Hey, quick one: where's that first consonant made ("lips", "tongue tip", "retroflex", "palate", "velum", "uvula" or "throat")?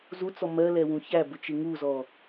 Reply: tongue tip